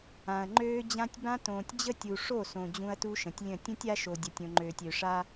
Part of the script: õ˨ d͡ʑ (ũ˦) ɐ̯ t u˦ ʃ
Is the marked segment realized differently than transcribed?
no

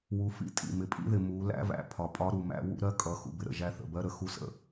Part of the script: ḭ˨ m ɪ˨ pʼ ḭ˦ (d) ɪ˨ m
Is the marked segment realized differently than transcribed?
yes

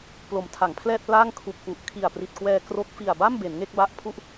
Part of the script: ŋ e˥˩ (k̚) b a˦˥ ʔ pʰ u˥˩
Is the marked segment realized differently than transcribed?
no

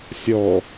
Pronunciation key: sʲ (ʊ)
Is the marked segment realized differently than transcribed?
yes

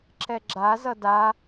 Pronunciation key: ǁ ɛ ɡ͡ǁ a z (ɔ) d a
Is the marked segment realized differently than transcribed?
yes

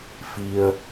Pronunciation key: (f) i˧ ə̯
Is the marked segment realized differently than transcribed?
no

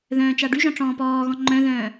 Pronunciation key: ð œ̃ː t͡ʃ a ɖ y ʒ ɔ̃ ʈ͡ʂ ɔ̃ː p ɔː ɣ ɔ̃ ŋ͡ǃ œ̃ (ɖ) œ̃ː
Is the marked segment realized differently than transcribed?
yes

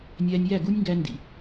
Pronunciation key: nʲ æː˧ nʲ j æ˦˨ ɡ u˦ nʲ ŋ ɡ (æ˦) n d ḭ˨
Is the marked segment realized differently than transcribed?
yes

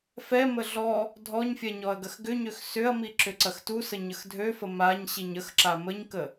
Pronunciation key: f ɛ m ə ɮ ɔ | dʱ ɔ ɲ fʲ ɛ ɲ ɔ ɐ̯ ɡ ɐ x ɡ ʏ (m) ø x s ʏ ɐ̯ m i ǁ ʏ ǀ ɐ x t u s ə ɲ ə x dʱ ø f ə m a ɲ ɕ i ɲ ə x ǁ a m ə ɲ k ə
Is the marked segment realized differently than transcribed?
yes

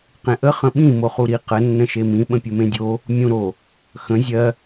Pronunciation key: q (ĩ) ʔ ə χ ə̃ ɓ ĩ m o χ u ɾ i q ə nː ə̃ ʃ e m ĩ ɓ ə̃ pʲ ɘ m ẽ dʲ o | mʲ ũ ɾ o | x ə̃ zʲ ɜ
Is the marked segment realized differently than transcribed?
yes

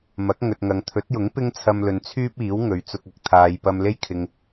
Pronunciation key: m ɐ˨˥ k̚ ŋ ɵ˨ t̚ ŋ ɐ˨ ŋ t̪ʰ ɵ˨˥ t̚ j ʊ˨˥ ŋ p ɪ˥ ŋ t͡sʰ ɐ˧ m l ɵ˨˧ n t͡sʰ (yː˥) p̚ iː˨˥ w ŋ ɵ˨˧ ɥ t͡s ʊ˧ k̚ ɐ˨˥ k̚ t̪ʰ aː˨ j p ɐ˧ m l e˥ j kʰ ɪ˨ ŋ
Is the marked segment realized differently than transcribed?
no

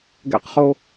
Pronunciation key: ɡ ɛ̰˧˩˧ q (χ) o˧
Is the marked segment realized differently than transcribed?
no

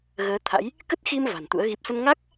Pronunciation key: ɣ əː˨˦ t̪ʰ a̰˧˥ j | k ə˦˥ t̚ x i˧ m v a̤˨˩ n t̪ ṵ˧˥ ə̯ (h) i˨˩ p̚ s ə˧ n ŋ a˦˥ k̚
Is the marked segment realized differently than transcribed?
yes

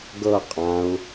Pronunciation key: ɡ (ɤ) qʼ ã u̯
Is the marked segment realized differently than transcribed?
no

